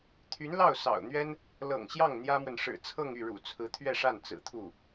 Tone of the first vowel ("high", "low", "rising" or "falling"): rising